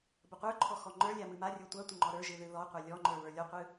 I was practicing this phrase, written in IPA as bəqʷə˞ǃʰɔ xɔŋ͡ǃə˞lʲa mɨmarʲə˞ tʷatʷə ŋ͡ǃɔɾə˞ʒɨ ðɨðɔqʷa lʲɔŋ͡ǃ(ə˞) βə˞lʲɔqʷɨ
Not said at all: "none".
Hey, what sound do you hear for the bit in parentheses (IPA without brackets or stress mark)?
ə˞